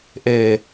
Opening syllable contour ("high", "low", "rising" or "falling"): low